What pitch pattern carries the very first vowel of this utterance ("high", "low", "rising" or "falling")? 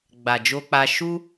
low